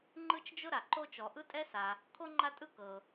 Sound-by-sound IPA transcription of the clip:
ŋ͡ǃɯ˥t͡ʃd͡ʒʊ˥ ɾa˩ǃo˥t͡ʃɔ˩ ʔɯ˥tʼɛ˥sa˩ | kʰo˥ ŋ͡ǃa˥tʼɯ˥ kɤ˩

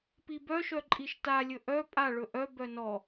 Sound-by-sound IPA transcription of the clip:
pibœʃœ ǃʼiʃta lʲɵʔœ pʼa ɭɵʔœ bœnɔ

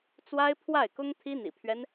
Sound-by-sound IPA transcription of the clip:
t͡swa˥ɪ̯pʰwa˥˩ɪ̯kʊ˥ŋ t̪ʰi˥n̪ḭ˨˩pʰɥɛ˦n

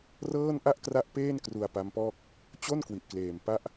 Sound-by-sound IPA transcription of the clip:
rɤː˥˩n ʔa˥˩ʔkra˦˥ʔ peː˥˩n kru˧a̯pa˦˥mpɔː˥˩k̚ | t͡ɕo˥˩n kwi˨˩ʔkleː˨˩m pa˦˥ʔ

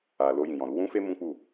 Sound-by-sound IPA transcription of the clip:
a˨ lo˧jĩ˨jɔ̃˨ɾu˧ wũ˦fe˦ mũ˦k͡pu˦˨

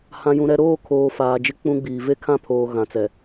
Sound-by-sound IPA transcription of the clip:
hã˨jũ˨ɾɛ˦ ɾoː˦˨kʰoː˨ faː˨d͡ʒɪ˦k͡pũ˦ɡ͡biː˨ ve˦kʰã˦˨pʰoː˨ ɣã˨t͡sɛ˨

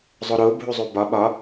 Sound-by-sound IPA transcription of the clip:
zˤoɾo bʱuzˤubɒ ɓɒ

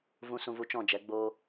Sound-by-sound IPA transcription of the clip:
vũ˨sũ˨vu˨ t͡ʃɔ̃˦˨d͡ʒɛ˨˦ɡ͡boː˦

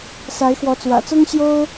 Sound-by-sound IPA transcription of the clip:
sa˧˥ɪ̯xwɔ˧˥t͡swä̰˨˩ t͡sʊ˥ŋɕjo˥ʊ̯

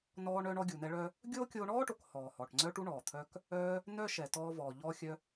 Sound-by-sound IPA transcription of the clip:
nɔː˧ɳœ˧ɳɔ˧ ɡʲu˩nɛ˧ɭœ˧ | ɡʲoː˥ kʲoː˧ɳɔː˥ʈo˩k hɔː˩hɔ˩ʈŋ͡ǀœ˧ʈu˧ ɳɔː˩t̪ʰœ˧k | œ˧ | nœ˥ʃɛ˩tɔː˧ vɔː˩ ʎɔː˧xʲœ˧

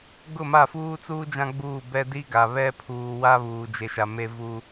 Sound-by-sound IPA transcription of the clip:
ɡʊ˦˨ma˦˨ fuː˦t͡suː˦ d͡ʒã˦ɡ͡buː˦˨bɛ˦ di˦ɡa˨ βɛ˦pʰuː˨wa˦ βuː˨d͡ʒe˨ʃa˨ me˦vu˦

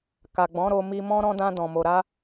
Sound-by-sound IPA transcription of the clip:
ka˨ɡ͡bɔ̃˨˦ ɾo˧mi˧mɔ̃˦ ɾɔ̃˦dã˦ dɔ̃˧mo˧ ɾa˦

